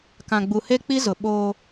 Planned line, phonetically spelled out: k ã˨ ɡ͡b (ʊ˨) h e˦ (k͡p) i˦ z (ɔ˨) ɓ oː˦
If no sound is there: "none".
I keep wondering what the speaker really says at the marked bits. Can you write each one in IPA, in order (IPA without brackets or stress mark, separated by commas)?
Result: u˨, k͡p, ʊ˨